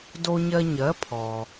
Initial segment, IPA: d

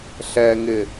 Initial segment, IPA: ɬ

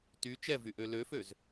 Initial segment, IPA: t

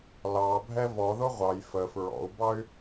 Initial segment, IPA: l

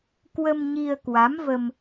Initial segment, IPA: k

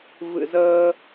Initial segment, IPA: v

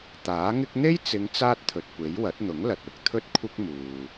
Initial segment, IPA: t̪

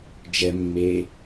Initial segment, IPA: d͡ʒ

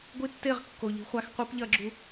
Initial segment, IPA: ɡʷ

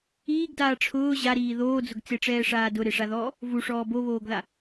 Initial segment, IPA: iː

